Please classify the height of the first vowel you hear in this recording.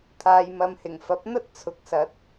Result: low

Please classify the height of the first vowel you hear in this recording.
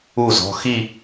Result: high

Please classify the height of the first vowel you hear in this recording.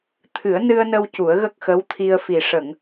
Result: high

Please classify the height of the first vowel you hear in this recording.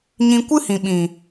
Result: high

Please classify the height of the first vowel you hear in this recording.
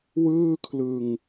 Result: high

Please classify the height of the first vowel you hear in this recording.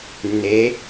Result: mid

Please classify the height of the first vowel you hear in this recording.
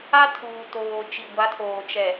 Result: low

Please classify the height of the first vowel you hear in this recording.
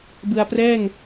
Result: high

